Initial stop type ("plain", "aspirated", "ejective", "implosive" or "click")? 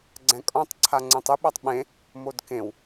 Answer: click